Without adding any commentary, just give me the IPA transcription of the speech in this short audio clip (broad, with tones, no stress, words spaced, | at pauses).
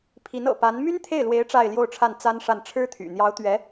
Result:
pʰi˧˥nɤ̰˨˩pa˧˥n my˥nt̪ʰe˥˩ɪ̯lwe˧˥ɪ̯ ʈ͡ʂa˥˧ɪ̯ljo˥˧ʊ̯ʈ͡ʂʰa˥˩n t͡sa˥nʂa˥˩n ʈ͡ʂʰɻ̩˥t̪ʰy̰˨˩ n̪jɑ˧˥ʊ̯t̪ɥɛ˧˥